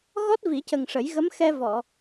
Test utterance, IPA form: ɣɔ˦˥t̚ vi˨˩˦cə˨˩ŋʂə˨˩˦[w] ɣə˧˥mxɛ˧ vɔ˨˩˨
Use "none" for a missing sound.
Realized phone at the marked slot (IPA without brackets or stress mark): j